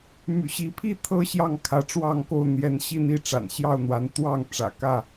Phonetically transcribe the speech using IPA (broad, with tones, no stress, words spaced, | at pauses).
my̰˨˩ɕi˨˦pʰi˥˨ t̪ʰɤ˦ ɕjɑ˥˨ŋkʰä˨˦ʈ͡ʂwɑ˥˨ŋko˥˨ʊ̯ n̪jɛ˨˦n ɕi˥˨n̪i˥˨ʈ͡ʂa̰˨˩n ɕjɑ˥˨ʊ̯n̪wa˨˦n t̪wɑ˥˨ŋʈ͡ʂä̰˨˩ kä˥˨